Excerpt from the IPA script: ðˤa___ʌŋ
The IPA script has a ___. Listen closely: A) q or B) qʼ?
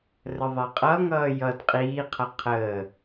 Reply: B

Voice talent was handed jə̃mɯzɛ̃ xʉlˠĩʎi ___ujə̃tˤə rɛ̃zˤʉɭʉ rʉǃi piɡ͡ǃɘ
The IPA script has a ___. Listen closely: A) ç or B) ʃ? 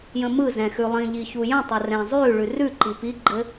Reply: A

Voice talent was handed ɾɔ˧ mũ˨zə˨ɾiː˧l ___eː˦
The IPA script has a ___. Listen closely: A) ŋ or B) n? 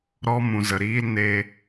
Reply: B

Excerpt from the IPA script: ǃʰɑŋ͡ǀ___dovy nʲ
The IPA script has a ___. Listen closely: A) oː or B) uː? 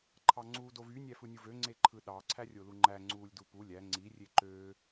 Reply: B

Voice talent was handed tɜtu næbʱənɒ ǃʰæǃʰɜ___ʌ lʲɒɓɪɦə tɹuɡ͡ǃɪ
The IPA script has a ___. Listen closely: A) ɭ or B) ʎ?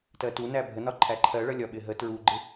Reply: A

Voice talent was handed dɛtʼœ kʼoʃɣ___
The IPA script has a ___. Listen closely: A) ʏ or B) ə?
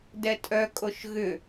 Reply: A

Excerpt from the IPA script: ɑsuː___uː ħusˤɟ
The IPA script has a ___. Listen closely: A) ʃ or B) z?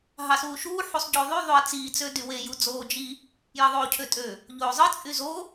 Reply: A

